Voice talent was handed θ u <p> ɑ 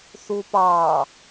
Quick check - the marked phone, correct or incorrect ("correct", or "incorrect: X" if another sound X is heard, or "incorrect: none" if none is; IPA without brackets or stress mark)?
correct